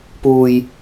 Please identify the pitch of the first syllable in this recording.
low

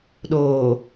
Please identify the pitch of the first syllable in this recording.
low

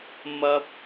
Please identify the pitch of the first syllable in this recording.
high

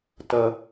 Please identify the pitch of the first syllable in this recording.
low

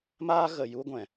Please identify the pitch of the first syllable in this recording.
high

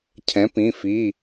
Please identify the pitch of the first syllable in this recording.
rising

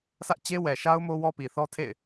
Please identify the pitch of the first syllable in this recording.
high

